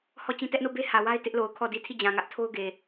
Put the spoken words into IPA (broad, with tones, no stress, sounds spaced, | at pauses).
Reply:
h ɔ˦˨ t͡ɕ ĩ˦ t ɛ˦ ʔ n o˦˨ b e˦ h ä˨ w a˦ ɪ̯ t ɪ˦ ʔ l o˨ ʊ̯ kʰ ɔ˦˨ d i˦ tʰ i˦˨ d͡ʑ ã˨ ŋ ä˦ ʔ tʰ o˦ ʊ̯ ɡ e˨